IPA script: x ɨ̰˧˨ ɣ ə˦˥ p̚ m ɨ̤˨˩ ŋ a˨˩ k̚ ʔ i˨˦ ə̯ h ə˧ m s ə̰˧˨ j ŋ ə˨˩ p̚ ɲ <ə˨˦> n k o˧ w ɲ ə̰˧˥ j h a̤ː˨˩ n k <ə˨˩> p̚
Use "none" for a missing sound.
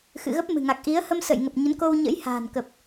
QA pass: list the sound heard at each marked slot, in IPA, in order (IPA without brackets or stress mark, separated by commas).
ə˨˦, ə˨˩